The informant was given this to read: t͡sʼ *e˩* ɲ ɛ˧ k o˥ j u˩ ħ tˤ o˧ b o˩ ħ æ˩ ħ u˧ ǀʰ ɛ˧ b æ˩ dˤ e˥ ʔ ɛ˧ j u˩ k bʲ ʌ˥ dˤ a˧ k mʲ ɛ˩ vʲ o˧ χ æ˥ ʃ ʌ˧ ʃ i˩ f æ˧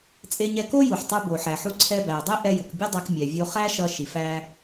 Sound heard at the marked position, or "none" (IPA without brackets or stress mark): e˧